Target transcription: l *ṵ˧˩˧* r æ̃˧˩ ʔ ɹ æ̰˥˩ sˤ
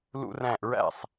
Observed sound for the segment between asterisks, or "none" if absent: ṵ˧˩˧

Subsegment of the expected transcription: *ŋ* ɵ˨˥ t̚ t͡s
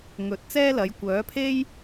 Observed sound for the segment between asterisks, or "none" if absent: ŋ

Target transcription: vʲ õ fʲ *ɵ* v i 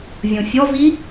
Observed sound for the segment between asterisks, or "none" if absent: ɔ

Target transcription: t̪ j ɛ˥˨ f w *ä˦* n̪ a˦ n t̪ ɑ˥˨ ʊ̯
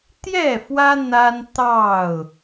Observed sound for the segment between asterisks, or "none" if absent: ä˦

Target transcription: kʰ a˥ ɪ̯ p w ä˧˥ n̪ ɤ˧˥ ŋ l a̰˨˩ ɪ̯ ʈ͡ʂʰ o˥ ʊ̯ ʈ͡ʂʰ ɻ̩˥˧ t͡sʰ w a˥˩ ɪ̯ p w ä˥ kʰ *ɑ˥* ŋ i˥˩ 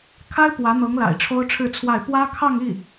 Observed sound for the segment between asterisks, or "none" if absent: ɑ˥˧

